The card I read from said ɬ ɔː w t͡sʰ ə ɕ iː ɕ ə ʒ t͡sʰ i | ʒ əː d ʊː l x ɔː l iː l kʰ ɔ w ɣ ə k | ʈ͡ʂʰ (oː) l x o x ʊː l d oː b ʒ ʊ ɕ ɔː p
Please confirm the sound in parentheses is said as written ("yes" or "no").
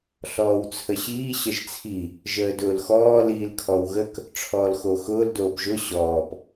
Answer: no